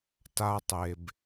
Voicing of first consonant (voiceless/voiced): voiceless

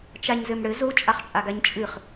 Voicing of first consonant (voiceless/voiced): voiceless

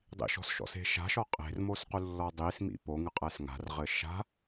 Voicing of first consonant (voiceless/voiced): voiced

